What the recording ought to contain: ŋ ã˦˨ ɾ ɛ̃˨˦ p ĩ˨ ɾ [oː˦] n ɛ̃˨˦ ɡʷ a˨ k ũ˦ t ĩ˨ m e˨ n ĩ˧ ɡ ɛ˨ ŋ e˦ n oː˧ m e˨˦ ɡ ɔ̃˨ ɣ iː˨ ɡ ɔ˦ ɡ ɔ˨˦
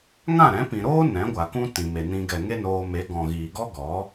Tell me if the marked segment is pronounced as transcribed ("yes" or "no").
yes